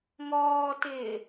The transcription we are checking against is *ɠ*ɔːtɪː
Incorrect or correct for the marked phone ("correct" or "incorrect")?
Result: incorrect